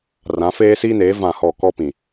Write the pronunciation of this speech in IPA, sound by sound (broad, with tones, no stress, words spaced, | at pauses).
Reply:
rã˨˦feː˦siː˦neː˨˦ vã˦˨hɔ˦˨ kɔ˦pĩ˨